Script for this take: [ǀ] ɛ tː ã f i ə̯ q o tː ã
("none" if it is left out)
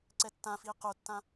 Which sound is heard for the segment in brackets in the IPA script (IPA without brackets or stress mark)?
ǀ